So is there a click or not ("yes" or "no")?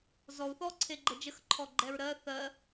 yes